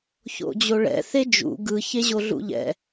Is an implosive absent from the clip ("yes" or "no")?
yes